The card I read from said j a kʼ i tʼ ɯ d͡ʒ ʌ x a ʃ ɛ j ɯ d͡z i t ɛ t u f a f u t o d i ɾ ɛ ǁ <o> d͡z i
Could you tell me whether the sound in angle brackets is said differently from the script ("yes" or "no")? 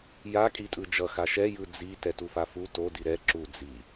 yes